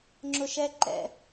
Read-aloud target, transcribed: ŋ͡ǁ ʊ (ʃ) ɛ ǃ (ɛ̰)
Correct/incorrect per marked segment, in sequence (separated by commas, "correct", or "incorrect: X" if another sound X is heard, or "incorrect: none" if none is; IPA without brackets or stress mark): correct, correct